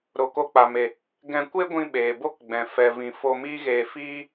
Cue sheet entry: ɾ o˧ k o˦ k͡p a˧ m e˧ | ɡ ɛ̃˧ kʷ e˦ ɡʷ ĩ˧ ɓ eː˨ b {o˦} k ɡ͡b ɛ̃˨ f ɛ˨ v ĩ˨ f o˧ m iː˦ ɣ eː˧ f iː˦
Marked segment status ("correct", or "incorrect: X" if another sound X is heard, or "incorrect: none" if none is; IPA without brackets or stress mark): correct